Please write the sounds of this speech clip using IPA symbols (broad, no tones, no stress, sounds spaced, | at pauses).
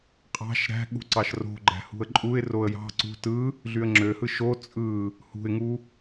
qʼ ɑ̤ ʃ ɾ æ̤ ɠ ṳ ǀ ɑ ʃ r o̤ ɡ͡ǃ æ̤ h ṳ ə̯ ǃʼ u ɪ̯ r o ə̯ j ɑ̤ ǀ ṳ t ɯ | ɮ y ə̯ ŋ͡ǁ ø h ɯ ʃ o t͡sʼ ɯ | h ṳ ɪ̯ ŋ u